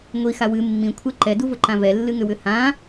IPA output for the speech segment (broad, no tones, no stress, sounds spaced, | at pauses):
ŋʷ i x a w ɨ mː ĩ kʷʰ ɛ ǃ ɛ d u v ʊ ǃ ã v ɛ lː ɨ ŋ ʏ w ʏ h ã